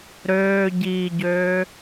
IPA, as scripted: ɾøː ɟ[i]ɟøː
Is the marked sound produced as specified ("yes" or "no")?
no